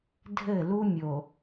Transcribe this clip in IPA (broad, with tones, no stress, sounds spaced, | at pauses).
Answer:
dʱ ɘ˦˨ l u˦ mʲ o˨